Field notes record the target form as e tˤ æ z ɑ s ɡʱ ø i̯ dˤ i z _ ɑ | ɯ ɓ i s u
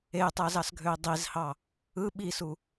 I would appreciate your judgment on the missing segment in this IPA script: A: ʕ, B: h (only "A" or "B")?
B